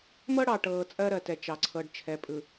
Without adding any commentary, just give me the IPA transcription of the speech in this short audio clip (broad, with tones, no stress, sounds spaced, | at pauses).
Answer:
m ɤ˦ ɽ ɑ˨ ʈ ɤː˨ t͡sʼ ɜ˦ ɾ ɜ˨ t ɛ˨ t͡ʃ ɑ˨ ǀʰ ɤ˨ ɖ t͡ʃʰ ɛ˨ pʼ ɯ˨